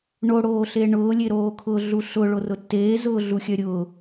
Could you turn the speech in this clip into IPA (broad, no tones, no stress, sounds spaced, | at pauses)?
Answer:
ɳ o ɽ oː ɬ e ɳ ʊː lʲ e ɾ oː kʰ ʊː ɮ u ɬ ʊ ɭ o r ʊ tː eː z ʊː ɮ u xʲ œ ɾʲ ʊː